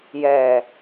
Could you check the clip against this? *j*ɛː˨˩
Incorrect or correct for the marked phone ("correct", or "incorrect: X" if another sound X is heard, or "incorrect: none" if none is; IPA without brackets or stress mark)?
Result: correct